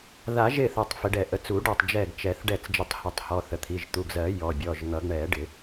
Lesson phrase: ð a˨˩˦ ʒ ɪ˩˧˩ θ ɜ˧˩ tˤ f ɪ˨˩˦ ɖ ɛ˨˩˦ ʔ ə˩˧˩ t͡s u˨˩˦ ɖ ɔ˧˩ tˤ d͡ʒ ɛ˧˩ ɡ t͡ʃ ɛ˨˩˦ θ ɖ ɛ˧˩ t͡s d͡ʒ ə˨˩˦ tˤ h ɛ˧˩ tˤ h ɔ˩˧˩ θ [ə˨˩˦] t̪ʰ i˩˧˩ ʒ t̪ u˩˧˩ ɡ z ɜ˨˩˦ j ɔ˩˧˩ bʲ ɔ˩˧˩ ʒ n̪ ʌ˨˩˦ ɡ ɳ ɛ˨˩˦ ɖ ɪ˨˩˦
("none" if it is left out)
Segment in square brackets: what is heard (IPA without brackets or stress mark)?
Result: ə˩˧˩